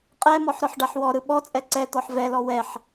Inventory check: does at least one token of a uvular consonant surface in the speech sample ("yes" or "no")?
yes